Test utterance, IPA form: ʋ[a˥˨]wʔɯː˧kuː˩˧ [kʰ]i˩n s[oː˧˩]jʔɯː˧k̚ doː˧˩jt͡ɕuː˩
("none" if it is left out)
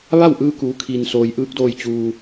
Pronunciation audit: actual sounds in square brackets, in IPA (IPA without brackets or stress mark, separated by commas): a˥˨, kʰ, oː˩